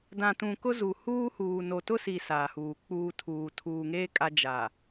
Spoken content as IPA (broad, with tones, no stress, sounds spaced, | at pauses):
d ã˨ t ũ˨ k ʊ˦ z u˨ h uː˦ h uː˨ n o˨ t ʊ˦ s i˨ s aː˨ h uː˨ k͡p uː˦ tʰ uː˨ tʰ uː˨ ŋ eː˦ kʼ a˦ d͡ʒ a˨